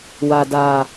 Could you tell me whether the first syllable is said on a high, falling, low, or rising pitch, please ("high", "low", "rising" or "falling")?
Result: low